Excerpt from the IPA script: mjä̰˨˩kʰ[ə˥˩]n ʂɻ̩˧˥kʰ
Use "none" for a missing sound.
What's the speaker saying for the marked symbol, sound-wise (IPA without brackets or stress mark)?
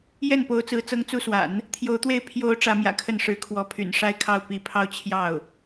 ə˥˩